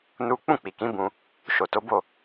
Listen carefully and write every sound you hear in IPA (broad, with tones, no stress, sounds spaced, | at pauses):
n u˦ k͡p ũ˦˨ k͡p i˨ k ĩ˨˦ b ũ˧ | ʃ o˨ t o˨˦ b o˦˨